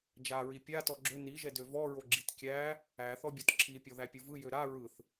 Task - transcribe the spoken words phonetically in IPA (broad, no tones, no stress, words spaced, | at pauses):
d͡ʒaɹi pʲa tɔɡ͡ǁø niʒɛ døvɔɹo ɡ͡ǁitkʲæ | æθɔ bʲɔtǁʰipʲɔ ðæpʲɯvɯ jøɾa ɹɯθ